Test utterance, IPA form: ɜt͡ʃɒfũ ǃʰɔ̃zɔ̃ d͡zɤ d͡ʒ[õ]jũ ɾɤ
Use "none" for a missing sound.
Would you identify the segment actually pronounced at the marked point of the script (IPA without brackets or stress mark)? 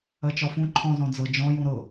ɔ̃